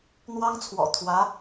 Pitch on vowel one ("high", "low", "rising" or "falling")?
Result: high